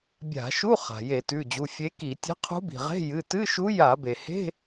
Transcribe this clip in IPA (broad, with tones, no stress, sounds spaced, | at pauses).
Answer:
bʲ a̤˧˩˧ ʃ u˧˥˧ χ a̤˩ j e˧˩˧ t ʉ˩˧˩ d͡ʑ u˩˧˩ fʲ e˧˥ k i˧˩˧ tʲ e̤˧˥ qʰ ṳ˧˥ b i̤˩ ʁ e̤˧˥˧ j ɨ˩˧˩ t ɨ˧˥˧ ʃ u˧˥ j a˧˩˧ b e˩ h e̤˧˥˧